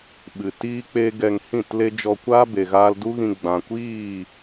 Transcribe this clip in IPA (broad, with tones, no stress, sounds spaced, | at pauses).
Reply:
ɓ ɨ˨ t iː˦ k͡p e˦ ɡ ɛ˧ ŋ h ĩ˦˨ t l e˦ d͡ʒ ɔ˧ kʷ aː˦ b e˨ ɣ aː˦ l d u˦ ɣ ĩ˧ ɡ͡b ã˨ kʷ iː˦˨